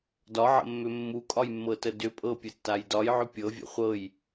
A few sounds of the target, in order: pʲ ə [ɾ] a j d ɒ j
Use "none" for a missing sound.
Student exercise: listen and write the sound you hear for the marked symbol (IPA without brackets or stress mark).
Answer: tː